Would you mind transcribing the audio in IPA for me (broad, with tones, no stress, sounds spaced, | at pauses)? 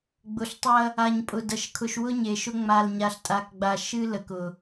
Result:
ɡ͡b ʊ˨ ɬ tˤ ɐ˦ | a˨ ɲ pʼ ʊ˨ d ɐ˨ ʃ kʰ ʊ˨ ʃ w ʊ˦ ɲ e˨ ʃ ʊ˦ ŋ͡m a˨ l ɲ a˨ ɬ tʼ a˨ k ɡ͡b a˨ ʃ ɨ˦ l ə˨ k ʊ˨